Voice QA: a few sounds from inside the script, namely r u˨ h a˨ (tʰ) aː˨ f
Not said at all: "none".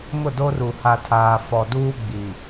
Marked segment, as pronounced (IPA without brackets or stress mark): tʰ